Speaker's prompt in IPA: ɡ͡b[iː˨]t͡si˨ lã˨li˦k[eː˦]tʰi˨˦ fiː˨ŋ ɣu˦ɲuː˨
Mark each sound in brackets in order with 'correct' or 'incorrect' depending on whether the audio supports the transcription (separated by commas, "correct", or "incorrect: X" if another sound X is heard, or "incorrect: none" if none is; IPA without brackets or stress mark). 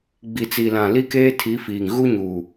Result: incorrect: i˨, correct